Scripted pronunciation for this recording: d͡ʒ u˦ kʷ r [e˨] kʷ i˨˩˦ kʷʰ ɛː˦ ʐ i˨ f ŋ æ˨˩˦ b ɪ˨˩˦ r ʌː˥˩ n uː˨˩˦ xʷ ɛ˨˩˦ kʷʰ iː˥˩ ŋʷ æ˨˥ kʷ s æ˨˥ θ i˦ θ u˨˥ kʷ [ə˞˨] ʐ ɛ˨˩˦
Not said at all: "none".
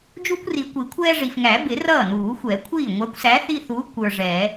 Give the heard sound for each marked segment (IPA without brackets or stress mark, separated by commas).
i˨, ə˞˨